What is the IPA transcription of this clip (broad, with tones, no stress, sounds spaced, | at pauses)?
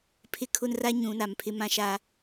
pʰ ɪ˦ kʰ ʊ˦ n r a˦ ɲ ũ˨˦ n a˨ m pʰ ɪ˦ m ã˦ ʃ a˦